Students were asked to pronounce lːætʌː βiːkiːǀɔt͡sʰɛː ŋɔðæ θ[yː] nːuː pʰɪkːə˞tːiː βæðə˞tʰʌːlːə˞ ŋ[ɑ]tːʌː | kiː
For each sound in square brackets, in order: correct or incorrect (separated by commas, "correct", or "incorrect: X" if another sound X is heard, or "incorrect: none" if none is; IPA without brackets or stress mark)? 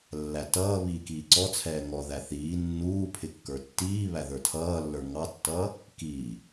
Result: incorrect: iː, correct